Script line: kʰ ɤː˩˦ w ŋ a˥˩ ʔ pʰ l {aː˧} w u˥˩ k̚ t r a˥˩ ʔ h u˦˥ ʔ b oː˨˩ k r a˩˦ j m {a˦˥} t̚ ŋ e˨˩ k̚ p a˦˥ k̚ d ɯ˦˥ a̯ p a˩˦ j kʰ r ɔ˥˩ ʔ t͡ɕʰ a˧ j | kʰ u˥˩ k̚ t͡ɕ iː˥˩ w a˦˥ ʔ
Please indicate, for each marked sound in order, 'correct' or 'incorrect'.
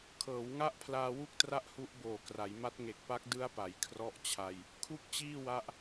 correct, correct

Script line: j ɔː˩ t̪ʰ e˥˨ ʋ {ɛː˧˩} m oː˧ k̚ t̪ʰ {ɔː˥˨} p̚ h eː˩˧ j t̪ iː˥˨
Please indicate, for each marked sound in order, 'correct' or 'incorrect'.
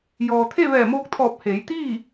correct, incorrect

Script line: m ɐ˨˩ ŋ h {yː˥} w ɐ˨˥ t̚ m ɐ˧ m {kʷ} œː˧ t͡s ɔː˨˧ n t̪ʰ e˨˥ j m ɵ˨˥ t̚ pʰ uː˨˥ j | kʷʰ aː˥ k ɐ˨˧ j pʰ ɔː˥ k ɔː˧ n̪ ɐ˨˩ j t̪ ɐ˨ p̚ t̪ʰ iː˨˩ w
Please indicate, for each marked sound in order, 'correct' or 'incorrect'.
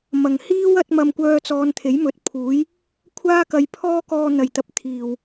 incorrect, correct

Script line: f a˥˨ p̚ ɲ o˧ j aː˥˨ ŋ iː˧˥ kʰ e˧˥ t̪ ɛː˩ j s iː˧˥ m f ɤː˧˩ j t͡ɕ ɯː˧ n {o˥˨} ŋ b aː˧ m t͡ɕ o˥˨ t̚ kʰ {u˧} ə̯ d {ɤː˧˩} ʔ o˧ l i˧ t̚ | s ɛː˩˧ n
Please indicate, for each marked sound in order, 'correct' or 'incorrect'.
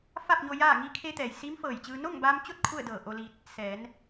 correct, incorrect, correct

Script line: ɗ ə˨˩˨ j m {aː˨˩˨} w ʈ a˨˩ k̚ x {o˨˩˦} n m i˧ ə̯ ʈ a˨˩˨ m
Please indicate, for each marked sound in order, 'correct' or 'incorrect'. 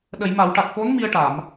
incorrect, incorrect

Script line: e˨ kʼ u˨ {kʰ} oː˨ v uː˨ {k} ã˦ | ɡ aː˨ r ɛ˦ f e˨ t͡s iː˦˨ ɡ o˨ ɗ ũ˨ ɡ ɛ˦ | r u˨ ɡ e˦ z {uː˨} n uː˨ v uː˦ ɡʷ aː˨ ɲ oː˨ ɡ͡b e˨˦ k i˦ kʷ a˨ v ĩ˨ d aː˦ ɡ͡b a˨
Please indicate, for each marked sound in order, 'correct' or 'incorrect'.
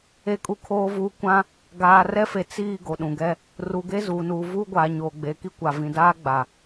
correct, incorrect, correct

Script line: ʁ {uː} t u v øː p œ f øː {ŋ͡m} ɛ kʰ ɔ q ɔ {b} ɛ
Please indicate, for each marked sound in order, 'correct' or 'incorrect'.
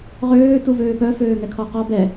incorrect, incorrect, correct

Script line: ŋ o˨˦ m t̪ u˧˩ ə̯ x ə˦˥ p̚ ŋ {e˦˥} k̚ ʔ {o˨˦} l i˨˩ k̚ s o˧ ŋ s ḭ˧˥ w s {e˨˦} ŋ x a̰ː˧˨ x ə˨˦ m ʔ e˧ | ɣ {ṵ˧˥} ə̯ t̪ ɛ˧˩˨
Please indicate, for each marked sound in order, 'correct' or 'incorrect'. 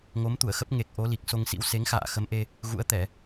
incorrect, correct, correct, correct

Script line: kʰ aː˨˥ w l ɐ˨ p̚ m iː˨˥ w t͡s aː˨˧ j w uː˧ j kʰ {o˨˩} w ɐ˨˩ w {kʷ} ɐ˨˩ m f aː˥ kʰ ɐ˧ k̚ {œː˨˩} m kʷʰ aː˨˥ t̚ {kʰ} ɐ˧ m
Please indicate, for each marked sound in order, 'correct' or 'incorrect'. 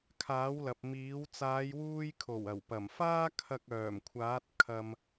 correct, incorrect, correct, correct

